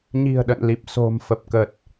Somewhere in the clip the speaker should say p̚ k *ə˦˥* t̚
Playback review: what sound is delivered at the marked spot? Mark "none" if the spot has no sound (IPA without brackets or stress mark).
ə˨˩